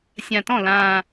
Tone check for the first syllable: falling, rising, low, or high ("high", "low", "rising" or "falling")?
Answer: low